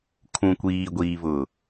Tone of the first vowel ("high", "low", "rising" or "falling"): low